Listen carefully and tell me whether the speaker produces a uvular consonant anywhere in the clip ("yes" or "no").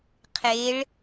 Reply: yes